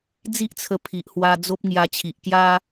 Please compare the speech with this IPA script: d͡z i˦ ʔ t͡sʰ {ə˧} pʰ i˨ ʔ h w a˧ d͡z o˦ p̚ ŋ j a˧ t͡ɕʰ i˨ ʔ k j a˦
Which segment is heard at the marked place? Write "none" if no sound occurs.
ə˧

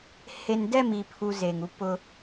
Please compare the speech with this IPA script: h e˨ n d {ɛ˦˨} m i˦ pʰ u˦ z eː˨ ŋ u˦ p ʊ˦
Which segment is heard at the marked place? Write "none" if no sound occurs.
ɛ˦˨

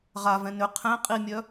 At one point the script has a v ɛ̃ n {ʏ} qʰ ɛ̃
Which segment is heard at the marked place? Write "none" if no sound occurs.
ʏ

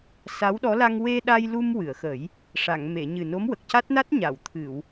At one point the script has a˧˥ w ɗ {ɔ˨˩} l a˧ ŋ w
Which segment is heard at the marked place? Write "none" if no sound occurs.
ɔ˧˥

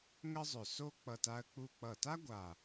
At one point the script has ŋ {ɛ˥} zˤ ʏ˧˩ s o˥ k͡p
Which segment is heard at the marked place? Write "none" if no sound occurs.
ə˥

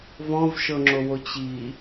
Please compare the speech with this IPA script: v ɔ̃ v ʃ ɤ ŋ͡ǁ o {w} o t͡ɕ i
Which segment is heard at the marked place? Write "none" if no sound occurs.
w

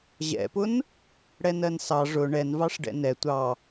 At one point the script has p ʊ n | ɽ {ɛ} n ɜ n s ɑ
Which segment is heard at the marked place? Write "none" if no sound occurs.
ɛ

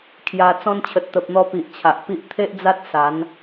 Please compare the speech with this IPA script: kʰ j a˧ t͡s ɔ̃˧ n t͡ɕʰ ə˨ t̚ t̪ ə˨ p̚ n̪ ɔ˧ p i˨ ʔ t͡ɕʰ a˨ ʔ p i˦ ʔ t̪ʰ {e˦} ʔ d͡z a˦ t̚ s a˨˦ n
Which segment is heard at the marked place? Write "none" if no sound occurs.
e˦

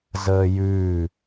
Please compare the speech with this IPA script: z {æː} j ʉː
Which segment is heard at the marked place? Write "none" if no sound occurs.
əː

